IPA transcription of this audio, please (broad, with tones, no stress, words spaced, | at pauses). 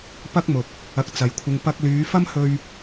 pɐ˥k̚mʊ˨k̚ | ɐ˧k̚t͡sɐ˨jkʷʰɪ˧ŋ pɐ˧k̚lyː˨˧ fɐ˥mhɵ˧ɥ